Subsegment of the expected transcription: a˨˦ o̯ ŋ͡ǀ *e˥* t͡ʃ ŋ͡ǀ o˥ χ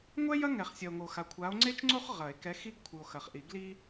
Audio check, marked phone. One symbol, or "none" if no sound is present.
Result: e˥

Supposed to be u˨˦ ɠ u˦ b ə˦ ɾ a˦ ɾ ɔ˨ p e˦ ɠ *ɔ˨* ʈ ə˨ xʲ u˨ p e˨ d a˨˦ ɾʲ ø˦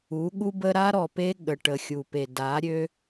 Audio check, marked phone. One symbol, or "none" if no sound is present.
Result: ə˨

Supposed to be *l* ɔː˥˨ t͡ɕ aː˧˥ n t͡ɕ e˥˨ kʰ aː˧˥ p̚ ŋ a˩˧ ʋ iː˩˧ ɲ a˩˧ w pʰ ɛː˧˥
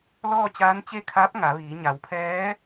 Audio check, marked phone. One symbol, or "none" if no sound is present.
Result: l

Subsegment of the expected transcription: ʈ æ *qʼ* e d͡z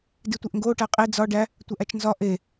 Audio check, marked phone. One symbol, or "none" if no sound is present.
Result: qʼ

